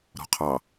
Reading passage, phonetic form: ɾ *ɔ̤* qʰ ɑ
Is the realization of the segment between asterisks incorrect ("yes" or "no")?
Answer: no